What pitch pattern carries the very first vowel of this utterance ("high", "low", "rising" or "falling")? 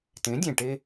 rising